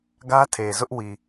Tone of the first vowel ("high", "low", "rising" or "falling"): high